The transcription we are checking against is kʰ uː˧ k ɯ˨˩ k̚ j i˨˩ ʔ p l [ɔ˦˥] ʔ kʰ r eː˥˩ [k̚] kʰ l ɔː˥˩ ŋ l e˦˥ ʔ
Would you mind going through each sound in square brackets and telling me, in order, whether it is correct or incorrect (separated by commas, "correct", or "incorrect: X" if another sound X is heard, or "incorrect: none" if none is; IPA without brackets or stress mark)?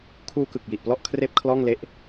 incorrect: ɔ˥˩, incorrect: p̚